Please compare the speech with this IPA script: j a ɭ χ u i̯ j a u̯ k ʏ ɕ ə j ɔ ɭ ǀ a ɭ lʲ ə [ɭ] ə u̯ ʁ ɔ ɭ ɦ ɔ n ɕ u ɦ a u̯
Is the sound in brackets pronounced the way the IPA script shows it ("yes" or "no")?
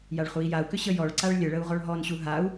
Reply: yes